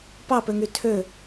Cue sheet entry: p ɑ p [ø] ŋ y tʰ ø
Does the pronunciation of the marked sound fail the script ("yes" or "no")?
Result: no